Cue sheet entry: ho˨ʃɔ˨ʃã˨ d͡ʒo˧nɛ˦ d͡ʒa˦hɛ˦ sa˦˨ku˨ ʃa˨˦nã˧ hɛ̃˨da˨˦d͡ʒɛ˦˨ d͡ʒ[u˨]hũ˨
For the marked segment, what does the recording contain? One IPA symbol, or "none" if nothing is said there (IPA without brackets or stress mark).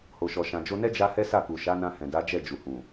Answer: u˨